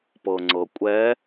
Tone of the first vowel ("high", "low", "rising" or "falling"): low